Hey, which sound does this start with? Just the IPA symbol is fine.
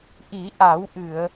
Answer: ʔ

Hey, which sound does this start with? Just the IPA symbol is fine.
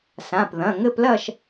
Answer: s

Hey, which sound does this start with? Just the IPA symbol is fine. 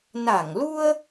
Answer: n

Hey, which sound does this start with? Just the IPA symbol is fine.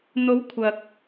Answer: n̪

